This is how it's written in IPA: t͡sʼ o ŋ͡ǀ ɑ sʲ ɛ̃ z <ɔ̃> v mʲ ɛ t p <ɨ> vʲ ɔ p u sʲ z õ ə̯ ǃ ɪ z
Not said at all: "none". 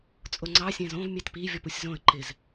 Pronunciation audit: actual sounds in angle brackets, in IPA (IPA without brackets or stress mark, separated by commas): õ, i